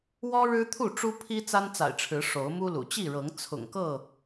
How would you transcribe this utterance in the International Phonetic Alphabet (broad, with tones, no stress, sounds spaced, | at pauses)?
w ɔ˦ ɻ ɻ̩˦ t̪ʰ u˥˨ ʈ͡ʂ u˦ pʰ i˦ t͡s a˦ n t͡s a̰˨˩ ɪ̯ ʈ͡ʂʰ ɻ̩˨˦ ʂ o˨˦ ʊ̯ m u˦ l ṵ˨˩ t͡ɕ i˥˨ ɻ ɤ˨˦ ŋ t͡sʰ ʊ̰˨˩ ŋ k ɤ˥˨